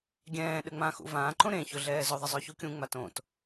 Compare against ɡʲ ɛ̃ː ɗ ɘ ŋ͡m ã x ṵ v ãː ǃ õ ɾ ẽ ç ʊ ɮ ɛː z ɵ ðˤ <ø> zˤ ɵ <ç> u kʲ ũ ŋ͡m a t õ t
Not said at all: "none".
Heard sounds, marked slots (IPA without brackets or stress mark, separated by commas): ɘ, ç